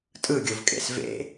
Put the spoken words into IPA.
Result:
tʼ ɯ ɡʲ o v kʼ ḛ s v ḛ

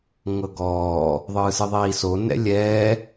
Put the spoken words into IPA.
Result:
ŋ ɤ ɡ ɔː | ðˤ ɯː s ɯ ðˤ iː s o n ɛ̰ lʲ ɛː

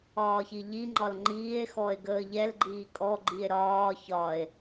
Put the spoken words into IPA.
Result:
ɒː ç i ʎ i ŋ͡ǃ ɒ l ŋ͡ǃ iː e̯ x ɔ e̯ ɡ əː ʎ ɛ l ɡ͡ǃ iː kʼ ɔ ɡ͡ǃ i e̯ ɾ ɒː ç ɒ e̯

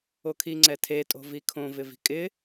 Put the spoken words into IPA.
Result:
o kʰ i ŋ͡ǀ ɛ tʰ e tʼ o̤ v i kʰ õ v ɪ v i̤ kʼ ɪ

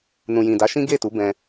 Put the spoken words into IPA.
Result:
n ũ˨ j ĩ˨ d a˨˦ ʃ ĩ˦ ɡ e˦˨ t u˨˦ b ɛ̃˧

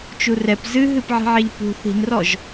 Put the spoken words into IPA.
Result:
t͡ʃ u r ɛ p z ɨ ɦ ɨ p ʕ i̤ ʕ e ʎ p ṳ θ i̤ n r ɔ ʒ

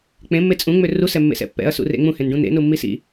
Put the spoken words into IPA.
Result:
k͡p ẽ mː e t͡sʼ ũ ŋ͡m ø r u s ɛ mː ḛ s ɛ̰ pː ɛ̰ ɐ̯ s ṵ r ḛ ŋ͡m ũ h ẽ n ɖ ũ n ḛ n u mː i s ḭ

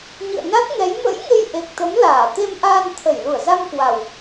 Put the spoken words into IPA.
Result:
ɲ ɨ̰˧˨ ə̯ n a˦˥ t̚ ŋ ɛ˨˦ j m ə̰˧˥ j ŋ e˧ j ʔ e˨˩ k̚ t̪ ə˨˦ m l aː˧˩ t̪ e˧ m ʔ aː˧ n t̪ʰ ə˧˩ j l u˧˩ ə̯ z a˧ m k w a˨˩ w

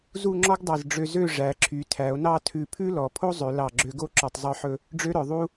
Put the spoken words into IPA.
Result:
z u˥˧ ŋ͡ǁ ɔ˥ ɡ dˤ ɑ˧˩ z ɖ͡ʐ ø˧ z ø˥˧ ʐ æ˩˧ ǁʰ y˩˧ tʰ æ˩˧ o̯ n ɑ˥˧ tʰ ʉ˧˩ pʰ ʉ˥ l ɔ˩˧ pʰ o˥ zˤ ø˩˧ l ɑ˧˩ ɡ͡ǁ ø˧ ɡ o˥˧ ǁ ɔ˧˩ tˤ zˤ œ˥˧ ħ ɵ˥˧ | ɖ͡ʐ ø˥ ɾ œ˩˧ ðˤ u˥

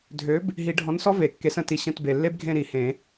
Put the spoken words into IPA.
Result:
dʱ ø˨˥ b | ɦ i˨˩˦ ɖʱ ɔ̃˨˥ n s ɔ˦˥ v e˨˩˦ kː e˨˥ s ə̃˨˩˦ t i˨ ɕ ə̃˦˨ t b e˨ lː e˦˥ b ɡʱ ẽ˦˨ ɾ i˨˩˦ h ẽ˨˩˦

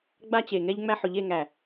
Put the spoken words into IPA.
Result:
ɡ͡b a˦ t͡ɕ e˨ ŋ ɛ˦ ʎ ŋ͡m æ˦ ħ ʊ˨ ʎ e˦˨ ŋ æ˨

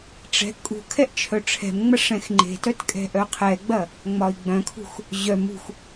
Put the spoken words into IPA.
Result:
ʈ͡ʂ ɛ̤ kʼ ṳ kʰ ɛ ʔ t͡ʃʰ œ ʈ͡ʂʰ ɛ̤ m ŋ͡m ɐ ʂ ɛ̃ x ŋ͡ǃ e̤ t œ t kʼ ɛ̤ ʔ œ qʰ ɛ ɡ͡b ɐ | ŋ͡m ɒ i̯ ɡ͡b œ̃ kʰ ṳ x | ʑ œ m ṳ x

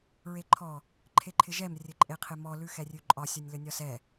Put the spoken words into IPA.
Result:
ɹ e ǃʰ ɔ | ǃʰ e ǃʰ ɪ ʒ ɛ m rʲ ɘ ǃʼ e qʰ ɪ m ɔ l ʉ x ɛ rʲ ʉ ǃʼ ɒ sʲ ɒ nʲ l ɘ nʲ ɒ s ɛ

